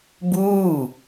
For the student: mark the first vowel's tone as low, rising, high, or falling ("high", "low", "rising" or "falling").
falling